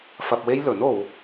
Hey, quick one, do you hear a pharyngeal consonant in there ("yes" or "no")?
no